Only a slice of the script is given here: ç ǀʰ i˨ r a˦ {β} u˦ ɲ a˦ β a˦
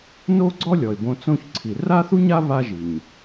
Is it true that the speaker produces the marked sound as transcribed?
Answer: no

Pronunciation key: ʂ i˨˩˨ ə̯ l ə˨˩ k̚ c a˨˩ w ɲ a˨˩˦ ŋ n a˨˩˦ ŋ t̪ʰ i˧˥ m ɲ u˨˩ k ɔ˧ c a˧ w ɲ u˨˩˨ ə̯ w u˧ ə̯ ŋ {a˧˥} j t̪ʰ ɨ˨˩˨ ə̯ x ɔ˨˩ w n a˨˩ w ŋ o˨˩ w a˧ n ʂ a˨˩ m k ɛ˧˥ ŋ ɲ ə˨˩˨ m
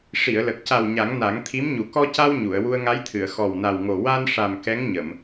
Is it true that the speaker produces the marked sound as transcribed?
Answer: yes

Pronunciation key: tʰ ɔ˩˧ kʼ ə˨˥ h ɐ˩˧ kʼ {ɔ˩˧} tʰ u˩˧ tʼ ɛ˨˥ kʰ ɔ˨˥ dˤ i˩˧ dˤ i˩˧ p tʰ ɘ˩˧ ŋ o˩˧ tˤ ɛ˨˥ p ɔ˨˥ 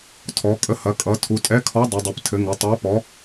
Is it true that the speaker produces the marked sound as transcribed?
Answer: no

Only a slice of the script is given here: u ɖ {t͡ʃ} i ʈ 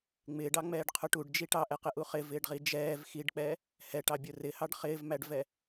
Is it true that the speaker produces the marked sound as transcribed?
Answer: no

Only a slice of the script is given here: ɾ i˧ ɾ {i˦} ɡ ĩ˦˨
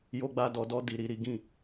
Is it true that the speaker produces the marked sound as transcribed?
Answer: yes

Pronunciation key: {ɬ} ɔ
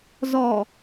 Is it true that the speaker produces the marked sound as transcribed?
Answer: no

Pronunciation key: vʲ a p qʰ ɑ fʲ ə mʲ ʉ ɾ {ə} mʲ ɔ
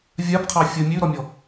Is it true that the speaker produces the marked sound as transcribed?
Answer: no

